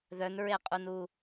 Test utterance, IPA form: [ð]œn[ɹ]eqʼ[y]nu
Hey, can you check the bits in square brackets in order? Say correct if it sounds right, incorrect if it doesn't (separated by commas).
correct, correct, incorrect